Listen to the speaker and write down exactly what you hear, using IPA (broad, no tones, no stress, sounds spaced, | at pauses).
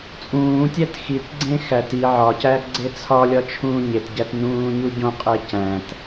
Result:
t͡sʼ ũː tʲ æ t x i t ɡ͡ǀ ẽ x æ t i ʕ ɒ c æ ɡ͡ǀ e t͡sʰ ɒ lʲ ɒ t͡ʃʰ ũː ɲ e t ɟ æ t n ũː ɲ u ɟ õ qʼ e c æ̃ t